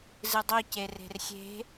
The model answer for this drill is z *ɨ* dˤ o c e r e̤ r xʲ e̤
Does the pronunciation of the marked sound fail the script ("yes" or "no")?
no